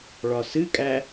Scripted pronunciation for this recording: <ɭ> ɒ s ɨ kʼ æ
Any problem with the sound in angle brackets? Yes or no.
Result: no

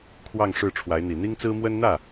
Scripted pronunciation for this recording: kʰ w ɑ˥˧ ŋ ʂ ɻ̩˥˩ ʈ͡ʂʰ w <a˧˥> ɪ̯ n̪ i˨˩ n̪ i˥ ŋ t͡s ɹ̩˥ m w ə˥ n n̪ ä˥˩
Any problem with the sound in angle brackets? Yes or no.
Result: no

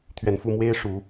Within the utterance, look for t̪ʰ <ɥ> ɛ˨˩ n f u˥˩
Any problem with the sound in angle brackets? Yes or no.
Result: no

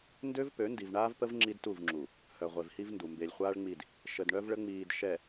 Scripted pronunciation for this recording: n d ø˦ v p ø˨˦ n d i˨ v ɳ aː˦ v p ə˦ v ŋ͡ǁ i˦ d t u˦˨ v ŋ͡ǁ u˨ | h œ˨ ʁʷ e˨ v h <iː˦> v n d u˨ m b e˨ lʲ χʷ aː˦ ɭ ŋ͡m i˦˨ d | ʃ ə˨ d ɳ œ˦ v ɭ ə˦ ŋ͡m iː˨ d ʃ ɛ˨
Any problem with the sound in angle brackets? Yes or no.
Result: yes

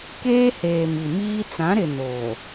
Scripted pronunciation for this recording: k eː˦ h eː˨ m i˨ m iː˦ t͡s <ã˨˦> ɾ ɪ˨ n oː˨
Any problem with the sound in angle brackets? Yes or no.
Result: no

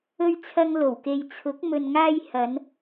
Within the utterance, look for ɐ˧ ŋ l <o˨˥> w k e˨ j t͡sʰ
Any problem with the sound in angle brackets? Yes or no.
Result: yes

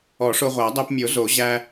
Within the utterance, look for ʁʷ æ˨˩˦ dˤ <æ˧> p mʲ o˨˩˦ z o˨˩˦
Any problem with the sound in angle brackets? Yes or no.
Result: no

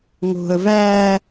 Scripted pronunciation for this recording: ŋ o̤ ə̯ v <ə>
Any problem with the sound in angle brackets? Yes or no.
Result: yes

